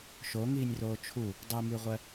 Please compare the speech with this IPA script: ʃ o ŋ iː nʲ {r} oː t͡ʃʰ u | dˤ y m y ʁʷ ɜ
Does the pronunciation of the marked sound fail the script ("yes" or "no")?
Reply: no